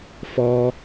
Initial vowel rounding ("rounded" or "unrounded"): rounded